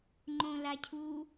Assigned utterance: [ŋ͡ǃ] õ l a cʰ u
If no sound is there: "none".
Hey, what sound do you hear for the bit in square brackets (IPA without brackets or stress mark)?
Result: ŋ͡ǃ